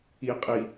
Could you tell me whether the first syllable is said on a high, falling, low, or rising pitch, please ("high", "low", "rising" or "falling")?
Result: low